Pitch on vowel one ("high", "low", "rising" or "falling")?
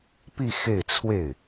falling